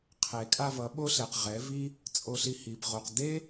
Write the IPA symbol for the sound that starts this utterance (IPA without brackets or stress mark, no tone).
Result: qʰ